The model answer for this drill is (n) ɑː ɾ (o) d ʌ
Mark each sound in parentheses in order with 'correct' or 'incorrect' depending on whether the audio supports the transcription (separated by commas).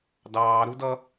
incorrect, incorrect